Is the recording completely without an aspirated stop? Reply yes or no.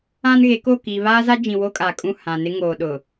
yes